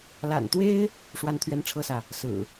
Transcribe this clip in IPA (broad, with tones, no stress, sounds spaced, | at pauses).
l a̰˨˩ n t̪ w e˦ ɪ̯ | ʂ w a˦ n t̪ʰ ɥ ɛ˦ n ʈ͡ʂʰ ɤ˦ s ä˨ | s ɹ̩˨˩